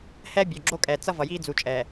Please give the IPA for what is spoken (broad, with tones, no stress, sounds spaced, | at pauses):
h ɛ˦ bʲ o˨ ɡ͡ǁ o˦ kʼ ɛ˨ t͡s ʌ˦ v ʌ˨ j iː˦ d͡z u˨ t͡ʃʼ ɛː˨